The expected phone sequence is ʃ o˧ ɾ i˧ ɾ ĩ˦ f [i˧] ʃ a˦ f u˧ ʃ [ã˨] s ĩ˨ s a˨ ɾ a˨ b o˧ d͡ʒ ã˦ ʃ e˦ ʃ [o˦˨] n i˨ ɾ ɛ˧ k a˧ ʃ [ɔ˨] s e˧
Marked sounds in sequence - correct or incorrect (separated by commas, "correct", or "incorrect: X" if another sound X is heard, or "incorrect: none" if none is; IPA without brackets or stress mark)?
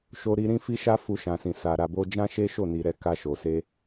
incorrect: i˦, correct, correct, incorrect: o˨